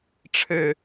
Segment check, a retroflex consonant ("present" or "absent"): present